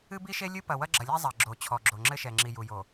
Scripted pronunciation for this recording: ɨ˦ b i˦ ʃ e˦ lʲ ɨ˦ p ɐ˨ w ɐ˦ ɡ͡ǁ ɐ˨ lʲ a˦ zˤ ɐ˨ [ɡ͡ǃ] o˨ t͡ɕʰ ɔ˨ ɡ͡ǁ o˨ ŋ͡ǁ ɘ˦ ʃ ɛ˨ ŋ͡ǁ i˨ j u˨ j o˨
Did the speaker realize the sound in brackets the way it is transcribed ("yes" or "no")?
no